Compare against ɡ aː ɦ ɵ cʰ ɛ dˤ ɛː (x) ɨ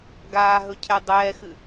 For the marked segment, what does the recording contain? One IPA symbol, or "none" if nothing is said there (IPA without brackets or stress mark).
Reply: x